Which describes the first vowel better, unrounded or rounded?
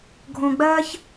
rounded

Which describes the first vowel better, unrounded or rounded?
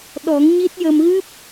rounded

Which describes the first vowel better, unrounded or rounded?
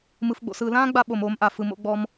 unrounded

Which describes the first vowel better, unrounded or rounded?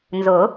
rounded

